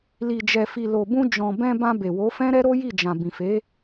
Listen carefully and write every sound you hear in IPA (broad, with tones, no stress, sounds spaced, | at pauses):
l i˨ d͡ʒ ɛ˨ f i˨ l o˨ b ũ˧ d͡ʒ ɔ̃˨ b ɛ̃˧ b ã˧ b e˨ w o˨˦ f ɛ̃˦ ɾ ɛ˦ ɾ o˦ j i˦˨ d͡ʒ ã˨ b ĩ˨ f e˨˦